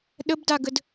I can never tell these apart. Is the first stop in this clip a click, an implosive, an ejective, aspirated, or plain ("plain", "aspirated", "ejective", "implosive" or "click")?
implosive